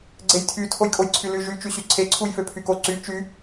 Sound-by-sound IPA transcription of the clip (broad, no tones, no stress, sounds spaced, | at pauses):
ɡ͡ǀ e j tʰ y tʰ o j kʼ o j ǀʰ y l y ʒ y t͡ʃ y ɕ y ǀʰ e ǀʰ u j f ø pʰ y k o ǀ y t͡ʃ y